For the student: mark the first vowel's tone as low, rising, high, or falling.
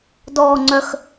low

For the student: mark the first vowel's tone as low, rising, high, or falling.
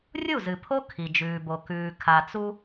falling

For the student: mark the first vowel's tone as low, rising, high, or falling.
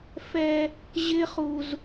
high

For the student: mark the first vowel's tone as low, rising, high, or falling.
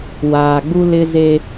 low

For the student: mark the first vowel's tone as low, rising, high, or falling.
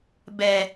low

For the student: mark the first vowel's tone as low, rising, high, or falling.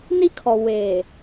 high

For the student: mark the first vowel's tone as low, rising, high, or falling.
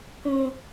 low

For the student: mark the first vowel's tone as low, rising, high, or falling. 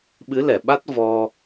rising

